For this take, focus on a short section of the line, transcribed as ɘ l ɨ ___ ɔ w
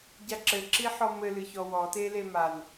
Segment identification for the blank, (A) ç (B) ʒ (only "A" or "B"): A